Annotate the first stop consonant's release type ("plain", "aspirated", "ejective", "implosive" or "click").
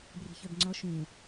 plain